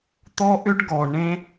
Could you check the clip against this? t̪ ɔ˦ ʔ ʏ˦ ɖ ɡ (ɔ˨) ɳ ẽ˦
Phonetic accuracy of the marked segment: correct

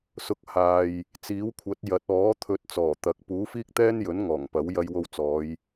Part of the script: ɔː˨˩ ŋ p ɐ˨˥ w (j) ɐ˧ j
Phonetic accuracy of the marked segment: correct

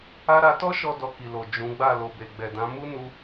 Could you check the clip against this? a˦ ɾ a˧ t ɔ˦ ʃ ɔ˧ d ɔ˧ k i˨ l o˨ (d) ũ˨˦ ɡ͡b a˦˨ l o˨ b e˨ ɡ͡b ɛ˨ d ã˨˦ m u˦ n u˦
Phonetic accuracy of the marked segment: incorrect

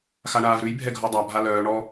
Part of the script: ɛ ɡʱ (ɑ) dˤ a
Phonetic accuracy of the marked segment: incorrect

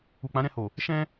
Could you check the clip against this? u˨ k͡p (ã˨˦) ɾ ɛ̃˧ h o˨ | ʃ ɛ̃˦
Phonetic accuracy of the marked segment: correct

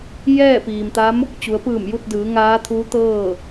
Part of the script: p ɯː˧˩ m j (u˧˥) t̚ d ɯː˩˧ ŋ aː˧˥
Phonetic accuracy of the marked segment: incorrect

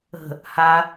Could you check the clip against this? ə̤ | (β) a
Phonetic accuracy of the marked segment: incorrect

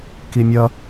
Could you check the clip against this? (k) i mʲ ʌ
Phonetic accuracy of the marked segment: correct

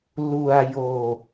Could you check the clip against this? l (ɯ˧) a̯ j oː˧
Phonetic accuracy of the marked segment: incorrect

